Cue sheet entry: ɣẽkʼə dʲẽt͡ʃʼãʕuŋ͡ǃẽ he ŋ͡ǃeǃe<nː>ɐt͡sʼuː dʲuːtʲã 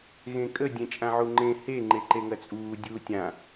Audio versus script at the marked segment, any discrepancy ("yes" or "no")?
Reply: yes